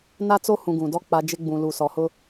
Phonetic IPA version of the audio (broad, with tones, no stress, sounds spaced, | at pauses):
n a˦ t͡s o˦ h ũ˨ ɡ ũ˨ d ɔ˦ k͡p a˨ d͡ʒ ɪ˦ ɡ͡b ũ˨ l u˨ s ɔ˨ h ʊ˦